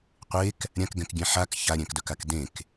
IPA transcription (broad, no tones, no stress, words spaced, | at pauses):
qʷek | ɾʲãkɡɛ̃k ɡʲɛ̃ħak çaɾʲɛ̃kdœkak dẽk